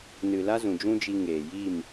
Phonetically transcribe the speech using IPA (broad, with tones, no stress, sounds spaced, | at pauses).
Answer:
n ɨ˨ l a˦ z ũ˨ d͡ʒ ũ˦ d͡ʒ i˧ ŋ eː˨ j i˦˨ m